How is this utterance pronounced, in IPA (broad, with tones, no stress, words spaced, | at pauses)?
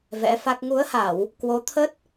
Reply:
vɛ̰˧˥fa˦˥k̚ ŋu˨˦ə̯ha˧˩˨w | kwo˨˦t̪ʰə˦˥t̚